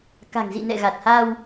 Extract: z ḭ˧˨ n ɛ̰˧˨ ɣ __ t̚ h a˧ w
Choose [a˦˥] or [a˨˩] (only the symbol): a˨˩